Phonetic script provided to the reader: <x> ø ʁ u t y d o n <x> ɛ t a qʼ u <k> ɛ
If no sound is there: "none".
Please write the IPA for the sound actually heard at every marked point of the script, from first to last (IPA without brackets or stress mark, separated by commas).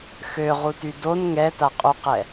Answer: x, ŋ, q